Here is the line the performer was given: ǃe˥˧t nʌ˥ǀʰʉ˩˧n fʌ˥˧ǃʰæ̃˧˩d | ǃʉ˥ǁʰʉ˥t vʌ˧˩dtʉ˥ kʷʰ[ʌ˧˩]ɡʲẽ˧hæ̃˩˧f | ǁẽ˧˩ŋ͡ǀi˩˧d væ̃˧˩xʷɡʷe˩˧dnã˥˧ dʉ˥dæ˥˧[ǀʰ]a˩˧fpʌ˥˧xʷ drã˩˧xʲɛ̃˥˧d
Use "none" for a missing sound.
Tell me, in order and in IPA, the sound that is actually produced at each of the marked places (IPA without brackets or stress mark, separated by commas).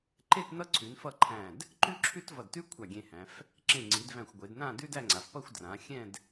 a˧˩, ŋ͡ǀ